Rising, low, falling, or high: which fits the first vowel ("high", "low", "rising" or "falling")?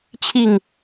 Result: low